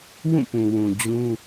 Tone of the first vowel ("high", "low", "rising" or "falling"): falling